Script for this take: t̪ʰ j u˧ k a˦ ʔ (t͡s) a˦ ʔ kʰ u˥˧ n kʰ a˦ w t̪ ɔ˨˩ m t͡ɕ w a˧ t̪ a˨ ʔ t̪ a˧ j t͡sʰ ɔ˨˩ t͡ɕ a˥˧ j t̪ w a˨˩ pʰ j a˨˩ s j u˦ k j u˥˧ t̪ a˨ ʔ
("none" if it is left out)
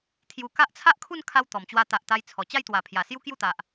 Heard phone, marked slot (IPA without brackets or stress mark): t͡sʰ